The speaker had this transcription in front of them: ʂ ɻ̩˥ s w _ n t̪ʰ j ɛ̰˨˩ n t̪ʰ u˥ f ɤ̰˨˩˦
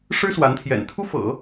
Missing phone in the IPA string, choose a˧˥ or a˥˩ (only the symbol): a˧˥